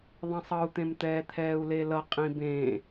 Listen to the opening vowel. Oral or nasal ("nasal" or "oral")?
nasal